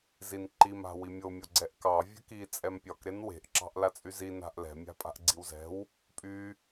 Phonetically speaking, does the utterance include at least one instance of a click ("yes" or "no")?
yes